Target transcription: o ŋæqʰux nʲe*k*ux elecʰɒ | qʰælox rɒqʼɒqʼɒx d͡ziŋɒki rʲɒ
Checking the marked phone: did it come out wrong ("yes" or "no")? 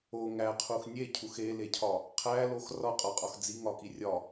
yes